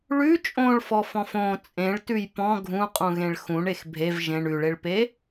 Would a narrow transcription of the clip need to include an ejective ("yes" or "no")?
yes